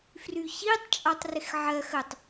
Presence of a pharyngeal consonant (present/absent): present